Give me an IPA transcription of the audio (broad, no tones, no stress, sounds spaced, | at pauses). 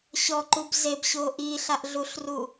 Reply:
ɕ ɔ ǃ u b z e b ɕ o ʔ i ɬ a ʔ ɮ u ɬ r u